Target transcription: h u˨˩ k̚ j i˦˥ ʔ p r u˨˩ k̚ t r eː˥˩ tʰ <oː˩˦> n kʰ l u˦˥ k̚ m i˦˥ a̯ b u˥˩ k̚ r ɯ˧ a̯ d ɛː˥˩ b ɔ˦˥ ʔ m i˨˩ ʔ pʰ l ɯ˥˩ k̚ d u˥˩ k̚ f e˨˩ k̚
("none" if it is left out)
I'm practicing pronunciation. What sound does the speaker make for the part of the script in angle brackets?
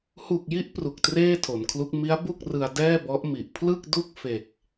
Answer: o˩˦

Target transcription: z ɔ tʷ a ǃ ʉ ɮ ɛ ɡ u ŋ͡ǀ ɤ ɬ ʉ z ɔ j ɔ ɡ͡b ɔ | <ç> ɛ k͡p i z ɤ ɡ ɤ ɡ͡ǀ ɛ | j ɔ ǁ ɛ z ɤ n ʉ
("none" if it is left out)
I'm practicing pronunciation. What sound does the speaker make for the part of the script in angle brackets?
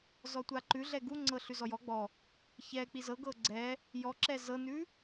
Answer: ç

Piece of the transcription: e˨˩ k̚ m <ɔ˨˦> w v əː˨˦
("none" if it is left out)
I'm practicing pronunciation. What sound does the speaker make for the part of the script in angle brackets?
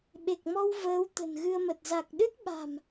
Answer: ɔ˧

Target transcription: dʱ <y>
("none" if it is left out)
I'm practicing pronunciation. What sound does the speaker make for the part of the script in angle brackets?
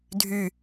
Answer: y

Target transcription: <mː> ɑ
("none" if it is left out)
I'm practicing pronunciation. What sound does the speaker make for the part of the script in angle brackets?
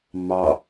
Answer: mː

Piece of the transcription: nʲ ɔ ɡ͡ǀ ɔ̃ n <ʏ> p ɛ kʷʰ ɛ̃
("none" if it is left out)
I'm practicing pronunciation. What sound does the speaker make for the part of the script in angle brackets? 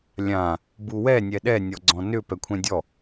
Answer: ʏ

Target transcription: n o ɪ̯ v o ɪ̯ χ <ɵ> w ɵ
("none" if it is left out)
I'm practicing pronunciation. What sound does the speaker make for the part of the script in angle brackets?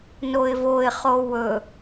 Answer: o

